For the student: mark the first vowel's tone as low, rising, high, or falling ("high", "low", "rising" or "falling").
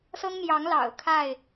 high